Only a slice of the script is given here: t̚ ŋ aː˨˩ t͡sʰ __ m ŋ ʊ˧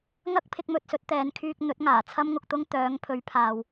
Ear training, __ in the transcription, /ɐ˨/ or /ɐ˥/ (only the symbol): ɐ˥